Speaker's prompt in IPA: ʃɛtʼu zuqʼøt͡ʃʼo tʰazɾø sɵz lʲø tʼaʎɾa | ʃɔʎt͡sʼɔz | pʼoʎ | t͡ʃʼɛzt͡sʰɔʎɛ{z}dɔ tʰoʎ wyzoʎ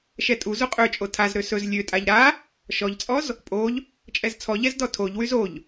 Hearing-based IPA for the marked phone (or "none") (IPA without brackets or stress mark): z